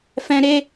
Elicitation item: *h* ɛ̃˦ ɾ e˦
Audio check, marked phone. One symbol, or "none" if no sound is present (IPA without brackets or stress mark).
f